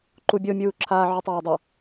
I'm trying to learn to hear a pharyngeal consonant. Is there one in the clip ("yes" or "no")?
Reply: yes